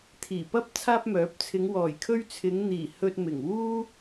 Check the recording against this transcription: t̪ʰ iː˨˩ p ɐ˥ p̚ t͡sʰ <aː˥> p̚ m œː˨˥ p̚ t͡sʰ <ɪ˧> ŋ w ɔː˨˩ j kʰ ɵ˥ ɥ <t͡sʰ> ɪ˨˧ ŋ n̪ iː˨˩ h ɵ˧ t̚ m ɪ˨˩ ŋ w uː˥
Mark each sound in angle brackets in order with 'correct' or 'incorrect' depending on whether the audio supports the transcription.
correct, incorrect: ɪ˨˧, correct

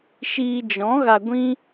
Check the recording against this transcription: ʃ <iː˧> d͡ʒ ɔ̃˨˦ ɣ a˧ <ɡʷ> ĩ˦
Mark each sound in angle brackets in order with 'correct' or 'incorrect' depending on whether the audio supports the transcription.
correct, correct

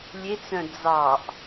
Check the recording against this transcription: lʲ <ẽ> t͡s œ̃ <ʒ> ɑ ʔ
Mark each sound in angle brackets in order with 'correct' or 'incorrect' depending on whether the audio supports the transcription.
incorrect: e, incorrect: d͡z

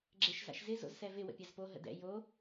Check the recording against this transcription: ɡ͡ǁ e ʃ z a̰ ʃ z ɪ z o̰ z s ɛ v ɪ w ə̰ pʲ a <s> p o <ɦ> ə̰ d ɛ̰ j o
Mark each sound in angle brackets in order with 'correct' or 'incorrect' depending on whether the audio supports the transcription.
incorrect: z, correct

